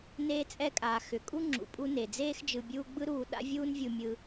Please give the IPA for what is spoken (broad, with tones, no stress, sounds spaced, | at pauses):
n eː˧ t͡sʼ ɛ˧ kʼ aː˩ x ʏ˩ kʼ u˥ ŋ͡ǁ ṵ˩ pʼ u˧ n e˩ d͡z eː˥ x d͡ʒ ɯ˧ bʲ uː˥ ɡ͡b ɯ˥ ɾ uː˧ ɗ a̰˥ vʲ uː˥ n vʲ u˧ mʲ ɯ˧